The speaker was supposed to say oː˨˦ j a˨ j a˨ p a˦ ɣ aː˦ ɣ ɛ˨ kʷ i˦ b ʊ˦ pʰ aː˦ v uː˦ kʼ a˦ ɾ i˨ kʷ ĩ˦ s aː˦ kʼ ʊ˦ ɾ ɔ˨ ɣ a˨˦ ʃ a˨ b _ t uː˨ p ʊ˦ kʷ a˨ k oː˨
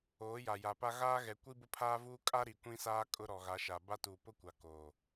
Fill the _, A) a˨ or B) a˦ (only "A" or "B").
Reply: B